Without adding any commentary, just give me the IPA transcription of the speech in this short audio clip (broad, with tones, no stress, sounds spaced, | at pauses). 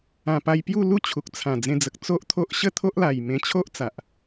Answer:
ã˨˩ p a˧ j p j u˥˧ l u˥˧ t͡ɕʰ u˨ k̚ t͡sʰ ã˨˩ d͡z ẽ˧ d͡z ə˨ k̚ t͡s o˦ ʔ t̪ʰ o˦ ʔ ɕ ə˥˧ t̪ʰ o˦ ʔ l a˨˩ j m ẽ˧ t͡ɕʰ o˦ ʔ t͡s a˨ ʔ